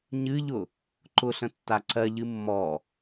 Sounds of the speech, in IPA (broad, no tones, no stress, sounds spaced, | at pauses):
ɲ ɨ ʎ ʊ | ǃ ʊ ɬ ə̃ tː a ǀ ɜ ʎ ɨ mː ɔ